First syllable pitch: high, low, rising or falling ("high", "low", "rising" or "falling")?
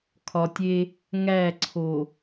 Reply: low